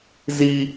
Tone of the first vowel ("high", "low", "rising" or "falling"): high